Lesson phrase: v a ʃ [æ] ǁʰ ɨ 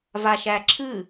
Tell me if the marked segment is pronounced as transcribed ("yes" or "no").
yes